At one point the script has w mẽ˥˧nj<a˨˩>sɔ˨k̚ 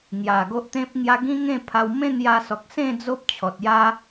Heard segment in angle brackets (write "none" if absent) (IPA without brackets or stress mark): a˧